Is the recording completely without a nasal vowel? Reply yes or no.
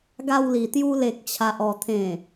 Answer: no